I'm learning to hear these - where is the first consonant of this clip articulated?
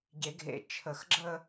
palate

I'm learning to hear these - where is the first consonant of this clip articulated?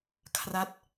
velum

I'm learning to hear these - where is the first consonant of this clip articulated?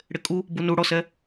retroflex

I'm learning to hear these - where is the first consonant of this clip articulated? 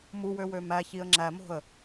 lips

